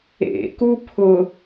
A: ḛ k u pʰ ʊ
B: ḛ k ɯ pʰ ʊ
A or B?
A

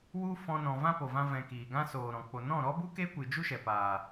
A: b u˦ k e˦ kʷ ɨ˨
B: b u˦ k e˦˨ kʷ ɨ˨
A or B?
A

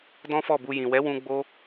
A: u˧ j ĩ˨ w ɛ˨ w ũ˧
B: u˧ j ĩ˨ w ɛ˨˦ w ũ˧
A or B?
B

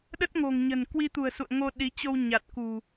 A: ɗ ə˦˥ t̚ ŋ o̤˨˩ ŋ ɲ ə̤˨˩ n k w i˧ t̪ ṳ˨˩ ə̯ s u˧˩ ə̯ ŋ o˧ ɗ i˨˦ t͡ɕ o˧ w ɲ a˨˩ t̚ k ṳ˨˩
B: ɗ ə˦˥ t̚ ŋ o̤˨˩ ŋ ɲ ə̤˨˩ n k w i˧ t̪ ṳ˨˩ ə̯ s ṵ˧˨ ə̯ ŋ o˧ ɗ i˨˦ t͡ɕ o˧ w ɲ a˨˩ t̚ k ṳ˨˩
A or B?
B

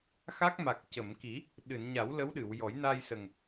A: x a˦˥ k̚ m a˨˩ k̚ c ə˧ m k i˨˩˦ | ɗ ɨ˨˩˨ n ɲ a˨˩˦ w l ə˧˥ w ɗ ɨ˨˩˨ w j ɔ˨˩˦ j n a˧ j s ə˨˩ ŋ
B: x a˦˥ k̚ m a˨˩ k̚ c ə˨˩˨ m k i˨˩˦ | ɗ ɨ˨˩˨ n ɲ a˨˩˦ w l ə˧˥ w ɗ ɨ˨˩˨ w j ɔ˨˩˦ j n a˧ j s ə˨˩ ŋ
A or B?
B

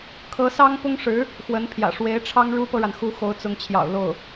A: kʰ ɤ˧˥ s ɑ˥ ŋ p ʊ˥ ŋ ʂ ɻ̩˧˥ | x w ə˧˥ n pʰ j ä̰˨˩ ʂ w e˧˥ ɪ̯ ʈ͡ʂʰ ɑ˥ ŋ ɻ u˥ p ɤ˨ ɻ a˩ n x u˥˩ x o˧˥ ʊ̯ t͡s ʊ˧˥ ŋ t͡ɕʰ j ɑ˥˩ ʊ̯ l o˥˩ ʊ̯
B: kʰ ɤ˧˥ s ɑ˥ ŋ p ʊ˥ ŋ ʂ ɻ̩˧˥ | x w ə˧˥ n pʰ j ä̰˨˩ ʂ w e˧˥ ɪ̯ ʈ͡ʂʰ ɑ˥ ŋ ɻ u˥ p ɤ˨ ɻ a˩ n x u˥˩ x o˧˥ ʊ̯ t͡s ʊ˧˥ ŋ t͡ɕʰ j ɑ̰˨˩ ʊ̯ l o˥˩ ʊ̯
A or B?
B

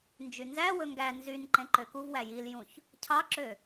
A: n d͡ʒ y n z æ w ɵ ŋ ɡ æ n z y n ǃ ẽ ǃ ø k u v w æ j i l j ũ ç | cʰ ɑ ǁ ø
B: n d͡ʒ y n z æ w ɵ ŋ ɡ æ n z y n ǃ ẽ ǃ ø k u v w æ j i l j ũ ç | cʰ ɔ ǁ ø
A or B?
A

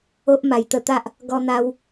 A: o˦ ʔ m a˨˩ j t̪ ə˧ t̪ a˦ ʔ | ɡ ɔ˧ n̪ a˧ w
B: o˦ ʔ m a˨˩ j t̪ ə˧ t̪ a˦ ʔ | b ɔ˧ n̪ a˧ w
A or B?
A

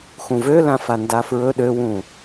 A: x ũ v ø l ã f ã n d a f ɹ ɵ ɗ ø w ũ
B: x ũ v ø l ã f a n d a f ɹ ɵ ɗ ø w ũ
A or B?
B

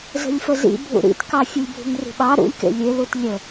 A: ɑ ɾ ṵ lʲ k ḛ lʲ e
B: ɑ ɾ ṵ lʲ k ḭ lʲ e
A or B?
A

